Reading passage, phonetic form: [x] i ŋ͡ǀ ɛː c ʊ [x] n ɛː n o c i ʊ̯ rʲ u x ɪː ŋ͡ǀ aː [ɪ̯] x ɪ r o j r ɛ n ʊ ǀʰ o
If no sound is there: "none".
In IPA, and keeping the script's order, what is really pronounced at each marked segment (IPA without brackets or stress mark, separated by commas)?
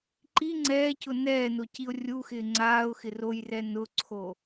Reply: ǃ, none, ʊ̯